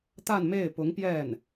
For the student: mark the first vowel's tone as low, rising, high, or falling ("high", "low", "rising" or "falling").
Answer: falling